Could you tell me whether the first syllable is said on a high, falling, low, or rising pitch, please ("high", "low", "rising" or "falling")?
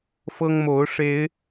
high